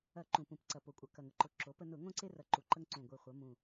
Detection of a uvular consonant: present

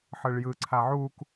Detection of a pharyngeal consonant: present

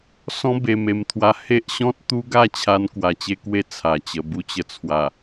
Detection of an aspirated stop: present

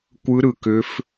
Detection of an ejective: absent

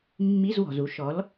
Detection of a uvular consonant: absent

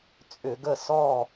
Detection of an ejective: present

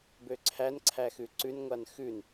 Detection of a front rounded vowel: present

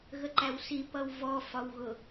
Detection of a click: present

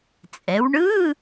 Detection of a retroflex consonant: present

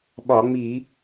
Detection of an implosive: present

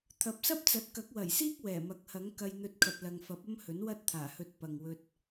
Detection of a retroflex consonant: absent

